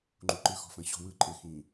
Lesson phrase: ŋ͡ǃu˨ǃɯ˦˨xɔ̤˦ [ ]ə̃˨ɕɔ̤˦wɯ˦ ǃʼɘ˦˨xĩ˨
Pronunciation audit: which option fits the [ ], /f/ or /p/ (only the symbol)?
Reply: f